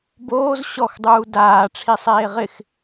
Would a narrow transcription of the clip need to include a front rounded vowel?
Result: no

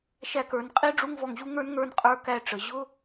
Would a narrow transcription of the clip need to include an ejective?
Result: yes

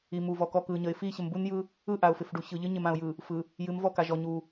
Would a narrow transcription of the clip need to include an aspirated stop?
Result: no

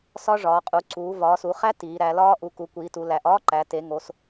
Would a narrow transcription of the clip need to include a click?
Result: yes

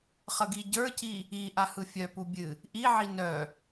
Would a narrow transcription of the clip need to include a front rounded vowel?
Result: yes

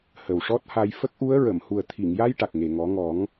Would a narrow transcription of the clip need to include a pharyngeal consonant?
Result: no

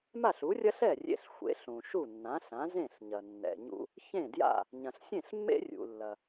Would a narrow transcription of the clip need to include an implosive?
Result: no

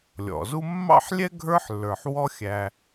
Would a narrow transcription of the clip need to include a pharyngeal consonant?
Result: yes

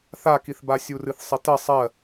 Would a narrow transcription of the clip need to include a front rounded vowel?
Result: no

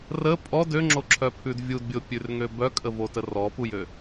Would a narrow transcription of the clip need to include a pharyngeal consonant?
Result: no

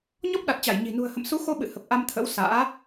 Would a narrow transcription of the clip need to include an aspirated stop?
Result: yes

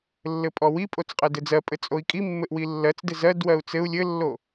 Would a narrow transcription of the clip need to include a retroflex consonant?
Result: no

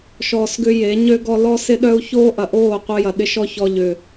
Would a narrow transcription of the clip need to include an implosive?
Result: yes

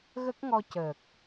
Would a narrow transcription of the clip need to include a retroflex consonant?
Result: no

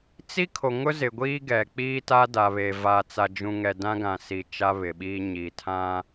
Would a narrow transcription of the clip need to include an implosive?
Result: yes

